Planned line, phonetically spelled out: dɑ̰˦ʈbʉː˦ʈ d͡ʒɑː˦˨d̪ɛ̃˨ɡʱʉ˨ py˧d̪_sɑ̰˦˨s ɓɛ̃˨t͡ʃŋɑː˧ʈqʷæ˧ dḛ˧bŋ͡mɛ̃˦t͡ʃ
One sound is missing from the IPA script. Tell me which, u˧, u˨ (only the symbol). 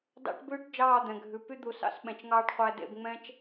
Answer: u˨